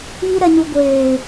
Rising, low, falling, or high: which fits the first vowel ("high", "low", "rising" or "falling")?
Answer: low